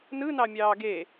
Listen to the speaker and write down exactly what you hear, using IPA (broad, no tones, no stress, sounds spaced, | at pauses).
n ɯ n ɑ mʲ ɑː ɡ e